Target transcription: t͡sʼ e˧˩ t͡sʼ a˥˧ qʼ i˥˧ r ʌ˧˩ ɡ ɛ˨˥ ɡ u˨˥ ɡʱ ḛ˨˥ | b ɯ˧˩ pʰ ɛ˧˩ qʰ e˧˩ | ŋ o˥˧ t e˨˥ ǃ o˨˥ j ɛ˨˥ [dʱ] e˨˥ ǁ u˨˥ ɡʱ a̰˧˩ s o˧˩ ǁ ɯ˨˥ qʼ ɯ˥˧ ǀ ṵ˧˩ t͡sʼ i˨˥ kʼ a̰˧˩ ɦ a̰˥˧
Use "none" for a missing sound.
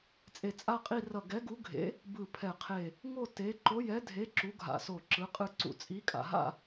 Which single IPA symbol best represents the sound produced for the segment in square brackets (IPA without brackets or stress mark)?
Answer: dʱ